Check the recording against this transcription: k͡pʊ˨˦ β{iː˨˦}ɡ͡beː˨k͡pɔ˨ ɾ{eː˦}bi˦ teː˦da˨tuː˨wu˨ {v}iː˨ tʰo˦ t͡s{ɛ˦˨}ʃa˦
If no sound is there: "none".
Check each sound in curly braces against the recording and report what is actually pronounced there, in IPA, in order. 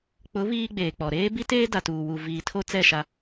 iː˦, eː˦, v, ɛ˦˨

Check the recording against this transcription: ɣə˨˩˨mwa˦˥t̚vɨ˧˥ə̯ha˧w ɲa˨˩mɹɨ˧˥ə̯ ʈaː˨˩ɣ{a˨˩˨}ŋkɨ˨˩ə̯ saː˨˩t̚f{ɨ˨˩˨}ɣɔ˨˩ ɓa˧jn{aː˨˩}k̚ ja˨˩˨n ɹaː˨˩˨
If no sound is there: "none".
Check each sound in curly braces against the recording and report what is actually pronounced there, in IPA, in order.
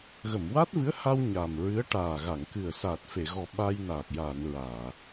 a˨˩˨, e˨˩˨, aː˨˩

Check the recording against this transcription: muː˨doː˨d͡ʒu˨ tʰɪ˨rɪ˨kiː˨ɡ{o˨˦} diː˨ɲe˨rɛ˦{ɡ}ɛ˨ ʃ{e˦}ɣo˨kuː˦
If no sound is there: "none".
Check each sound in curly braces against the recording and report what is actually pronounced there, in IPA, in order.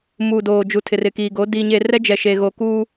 o˨˦, d͡ʒ, e˨

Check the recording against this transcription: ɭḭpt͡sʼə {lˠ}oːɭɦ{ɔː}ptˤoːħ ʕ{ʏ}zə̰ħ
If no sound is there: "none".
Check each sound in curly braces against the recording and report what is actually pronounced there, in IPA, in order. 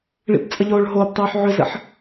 ʎ, oː, ʏ

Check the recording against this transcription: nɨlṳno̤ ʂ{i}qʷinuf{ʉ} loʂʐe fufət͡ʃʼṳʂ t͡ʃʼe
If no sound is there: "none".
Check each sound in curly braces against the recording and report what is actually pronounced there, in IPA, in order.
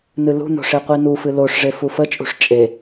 e, ɨ

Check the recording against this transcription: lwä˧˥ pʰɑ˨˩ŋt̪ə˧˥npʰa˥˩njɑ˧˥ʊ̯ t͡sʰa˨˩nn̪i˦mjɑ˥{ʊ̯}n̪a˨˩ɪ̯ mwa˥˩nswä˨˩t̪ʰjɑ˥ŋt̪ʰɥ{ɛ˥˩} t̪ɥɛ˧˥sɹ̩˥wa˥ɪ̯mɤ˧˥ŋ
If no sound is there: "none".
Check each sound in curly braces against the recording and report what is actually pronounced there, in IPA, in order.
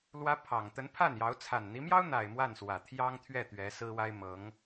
ʊ̯, ɛ˥˩

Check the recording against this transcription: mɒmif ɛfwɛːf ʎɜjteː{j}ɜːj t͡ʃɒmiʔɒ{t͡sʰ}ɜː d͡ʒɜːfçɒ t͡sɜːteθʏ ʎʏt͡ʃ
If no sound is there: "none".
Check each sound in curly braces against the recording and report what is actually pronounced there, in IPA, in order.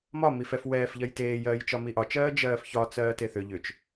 j, t͡ʃ

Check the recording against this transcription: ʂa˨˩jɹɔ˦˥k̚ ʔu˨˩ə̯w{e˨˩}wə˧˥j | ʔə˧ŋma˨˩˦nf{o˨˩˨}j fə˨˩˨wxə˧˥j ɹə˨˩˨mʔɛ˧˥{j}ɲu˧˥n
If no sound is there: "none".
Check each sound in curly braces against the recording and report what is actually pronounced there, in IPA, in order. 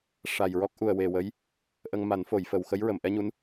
e˨˩, o˨˩˨, none

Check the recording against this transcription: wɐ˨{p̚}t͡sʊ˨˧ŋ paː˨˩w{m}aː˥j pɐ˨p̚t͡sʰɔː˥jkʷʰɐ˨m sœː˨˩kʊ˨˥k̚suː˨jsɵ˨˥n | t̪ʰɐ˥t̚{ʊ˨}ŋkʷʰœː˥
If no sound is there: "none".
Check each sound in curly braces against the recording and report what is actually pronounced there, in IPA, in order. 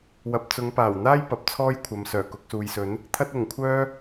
p̚, n̪, ʊ˨˩

